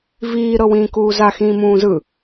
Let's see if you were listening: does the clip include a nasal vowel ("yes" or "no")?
yes